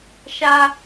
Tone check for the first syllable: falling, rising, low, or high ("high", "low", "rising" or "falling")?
high